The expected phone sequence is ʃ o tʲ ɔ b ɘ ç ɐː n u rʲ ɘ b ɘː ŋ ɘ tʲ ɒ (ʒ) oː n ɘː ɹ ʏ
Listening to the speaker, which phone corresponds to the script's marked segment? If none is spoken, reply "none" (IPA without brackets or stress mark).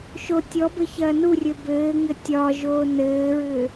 ʒ